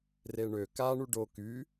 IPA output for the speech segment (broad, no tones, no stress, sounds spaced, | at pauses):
r e ɳ ø k a ɳ u ɖ o k y